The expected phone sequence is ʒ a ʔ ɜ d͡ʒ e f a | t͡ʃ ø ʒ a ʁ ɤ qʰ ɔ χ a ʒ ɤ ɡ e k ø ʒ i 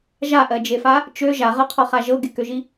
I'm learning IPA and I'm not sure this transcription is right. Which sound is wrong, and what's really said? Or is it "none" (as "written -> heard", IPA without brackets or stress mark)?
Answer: none